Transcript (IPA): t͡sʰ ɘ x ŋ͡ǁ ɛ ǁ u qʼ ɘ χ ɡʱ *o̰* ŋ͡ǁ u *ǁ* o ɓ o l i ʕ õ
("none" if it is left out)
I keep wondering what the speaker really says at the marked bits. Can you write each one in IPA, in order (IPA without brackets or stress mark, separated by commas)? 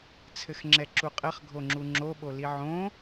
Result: o, ŋ͡ǁ